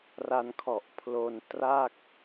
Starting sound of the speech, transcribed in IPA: r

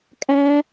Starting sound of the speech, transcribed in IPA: kʼ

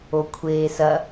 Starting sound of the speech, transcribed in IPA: o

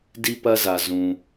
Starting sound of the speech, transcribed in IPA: d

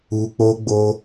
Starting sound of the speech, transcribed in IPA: u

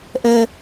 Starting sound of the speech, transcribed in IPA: ʔ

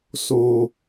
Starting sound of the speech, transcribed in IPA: s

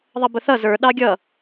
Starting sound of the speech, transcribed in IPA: ðˤ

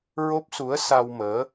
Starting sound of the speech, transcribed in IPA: ɹ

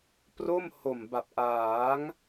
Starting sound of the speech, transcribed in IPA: p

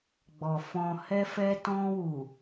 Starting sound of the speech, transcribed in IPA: ɡ͡b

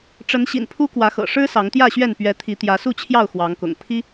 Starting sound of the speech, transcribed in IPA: ʈ͡ʂ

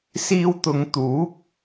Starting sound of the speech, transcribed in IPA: s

